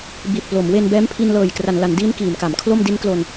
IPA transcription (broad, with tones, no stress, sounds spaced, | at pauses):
b i˨˩ t̚ p l o˩˦ m w e˧ n b ɛː˦˥ m pʰ i˧ n l ɤː˨˩ j k r a˩˦ n l a˩˦ n d iː˦˥ n k iː˩˦ m k a˩˦ m kʰ l o˥˩ m d i˦˥ n k l o˧ n